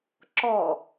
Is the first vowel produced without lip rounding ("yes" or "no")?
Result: no